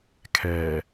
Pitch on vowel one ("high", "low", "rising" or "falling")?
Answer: low